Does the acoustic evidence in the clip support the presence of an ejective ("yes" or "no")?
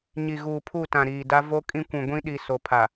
yes